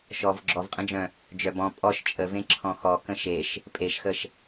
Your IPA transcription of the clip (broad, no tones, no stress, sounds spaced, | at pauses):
ʃ ɔ v ɡ͡ǁ ɔ v qʼ ə̃ d͡ʒ œ̃ | d͡ʒ œ b ɔ̃ pʼ ɔ ʃ t͡ʃʼ ə v ẽ ǁʰ ɔ̃ x ɔ k ə̃ ʃ e ʃ | pʼ e ʃ x ə ʃ